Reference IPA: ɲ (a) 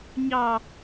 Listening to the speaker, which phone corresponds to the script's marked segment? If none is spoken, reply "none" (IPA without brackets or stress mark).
ɑ